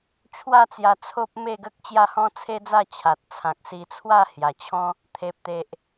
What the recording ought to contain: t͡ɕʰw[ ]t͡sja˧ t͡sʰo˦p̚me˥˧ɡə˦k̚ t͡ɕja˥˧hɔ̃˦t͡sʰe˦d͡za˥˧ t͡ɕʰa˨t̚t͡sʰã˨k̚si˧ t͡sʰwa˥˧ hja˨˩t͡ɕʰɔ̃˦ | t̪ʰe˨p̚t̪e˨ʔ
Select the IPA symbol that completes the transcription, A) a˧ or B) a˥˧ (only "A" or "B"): B